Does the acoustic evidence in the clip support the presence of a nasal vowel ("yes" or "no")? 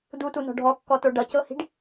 no